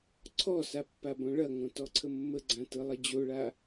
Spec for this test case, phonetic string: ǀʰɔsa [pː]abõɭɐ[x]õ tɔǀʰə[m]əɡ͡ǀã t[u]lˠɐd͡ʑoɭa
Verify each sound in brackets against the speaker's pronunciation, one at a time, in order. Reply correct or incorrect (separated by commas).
correct, incorrect, incorrect, incorrect